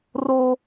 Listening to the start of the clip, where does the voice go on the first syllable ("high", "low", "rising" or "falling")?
high